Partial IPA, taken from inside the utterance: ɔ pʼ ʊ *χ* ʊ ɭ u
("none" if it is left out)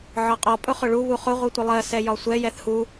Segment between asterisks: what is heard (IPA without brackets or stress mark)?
χ